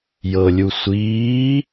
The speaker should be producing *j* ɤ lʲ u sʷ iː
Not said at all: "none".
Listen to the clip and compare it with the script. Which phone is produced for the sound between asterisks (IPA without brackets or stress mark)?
j